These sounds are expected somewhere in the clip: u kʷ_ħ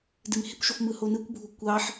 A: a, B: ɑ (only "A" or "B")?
B